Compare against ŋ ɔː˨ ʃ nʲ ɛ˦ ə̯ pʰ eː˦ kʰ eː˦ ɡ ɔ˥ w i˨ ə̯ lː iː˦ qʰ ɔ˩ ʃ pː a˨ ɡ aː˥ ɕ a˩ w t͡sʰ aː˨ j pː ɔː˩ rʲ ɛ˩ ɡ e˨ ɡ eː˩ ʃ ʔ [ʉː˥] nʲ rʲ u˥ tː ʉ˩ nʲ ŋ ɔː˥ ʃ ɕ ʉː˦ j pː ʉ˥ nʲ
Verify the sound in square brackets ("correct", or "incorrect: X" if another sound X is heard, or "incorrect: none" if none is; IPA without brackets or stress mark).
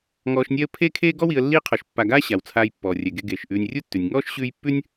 incorrect: ʉː˨